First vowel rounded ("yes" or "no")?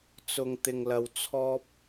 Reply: yes